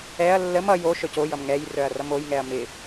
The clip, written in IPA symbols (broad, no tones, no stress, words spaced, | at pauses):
ɛɐ̯ lːəm ʌj o ʃœcojʌm ŋɛj rœɐ̯rʌmojŋɛɐ̯ mɪ